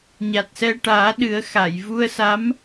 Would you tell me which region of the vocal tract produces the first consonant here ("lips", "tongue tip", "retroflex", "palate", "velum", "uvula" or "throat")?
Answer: palate